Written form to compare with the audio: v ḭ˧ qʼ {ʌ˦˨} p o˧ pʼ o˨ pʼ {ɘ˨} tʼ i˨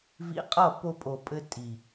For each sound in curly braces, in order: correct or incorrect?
correct, incorrect: ɘ˧

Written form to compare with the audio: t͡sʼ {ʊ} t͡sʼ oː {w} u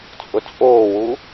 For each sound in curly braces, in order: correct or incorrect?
correct, correct

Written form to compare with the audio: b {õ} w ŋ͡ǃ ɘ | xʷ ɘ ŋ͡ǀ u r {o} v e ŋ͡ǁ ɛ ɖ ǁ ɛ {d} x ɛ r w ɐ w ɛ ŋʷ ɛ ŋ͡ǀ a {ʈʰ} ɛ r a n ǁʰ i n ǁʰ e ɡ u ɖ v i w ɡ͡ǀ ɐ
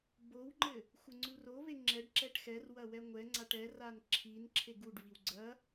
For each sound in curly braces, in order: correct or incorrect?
incorrect: o, correct, incorrect: ʈ, incorrect: ʈ

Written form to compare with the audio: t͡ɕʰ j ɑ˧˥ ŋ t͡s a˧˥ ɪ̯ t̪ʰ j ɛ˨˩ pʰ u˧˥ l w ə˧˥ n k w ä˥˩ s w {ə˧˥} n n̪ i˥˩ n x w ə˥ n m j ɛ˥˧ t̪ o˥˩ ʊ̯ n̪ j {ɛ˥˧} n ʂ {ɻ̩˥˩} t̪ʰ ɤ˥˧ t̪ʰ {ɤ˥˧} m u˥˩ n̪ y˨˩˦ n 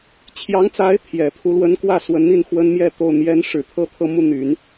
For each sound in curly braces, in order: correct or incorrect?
correct, incorrect: ɛ˧˥, incorrect: ɻ̩˨˩, correct

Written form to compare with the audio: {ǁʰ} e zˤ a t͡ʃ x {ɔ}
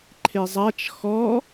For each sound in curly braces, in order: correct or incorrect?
incorrect: ǃʰ, correct

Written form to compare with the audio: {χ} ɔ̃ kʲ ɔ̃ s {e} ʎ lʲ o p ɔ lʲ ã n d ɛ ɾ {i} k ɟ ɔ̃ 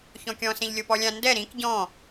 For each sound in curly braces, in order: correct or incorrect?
incorrect: ç, incorrect: ẽ, incorrect: ĩ

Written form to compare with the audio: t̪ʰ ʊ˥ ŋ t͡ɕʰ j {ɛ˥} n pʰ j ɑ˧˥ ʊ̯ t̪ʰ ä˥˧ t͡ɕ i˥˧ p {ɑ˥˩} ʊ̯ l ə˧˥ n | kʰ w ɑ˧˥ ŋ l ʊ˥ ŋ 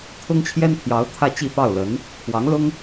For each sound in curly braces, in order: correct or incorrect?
correct, correct

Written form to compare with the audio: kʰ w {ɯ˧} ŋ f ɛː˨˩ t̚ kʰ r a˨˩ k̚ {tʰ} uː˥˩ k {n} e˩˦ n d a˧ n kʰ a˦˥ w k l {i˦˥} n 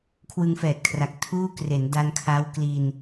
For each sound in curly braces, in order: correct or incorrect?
correct, correct, incorrect: r, incorrect: i˧

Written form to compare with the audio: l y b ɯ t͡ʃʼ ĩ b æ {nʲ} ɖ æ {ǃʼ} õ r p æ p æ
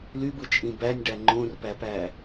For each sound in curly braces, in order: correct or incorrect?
correct, incorrect: ŋ͡ǃ

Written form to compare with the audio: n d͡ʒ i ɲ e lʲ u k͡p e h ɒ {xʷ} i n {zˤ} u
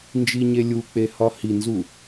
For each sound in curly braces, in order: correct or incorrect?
incorrect: h, incorrect: z

